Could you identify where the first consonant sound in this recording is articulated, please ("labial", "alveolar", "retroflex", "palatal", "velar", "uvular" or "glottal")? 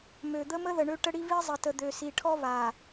labial